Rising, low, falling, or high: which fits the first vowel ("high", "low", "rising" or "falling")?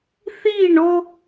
falling